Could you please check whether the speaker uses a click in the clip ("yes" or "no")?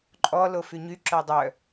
yes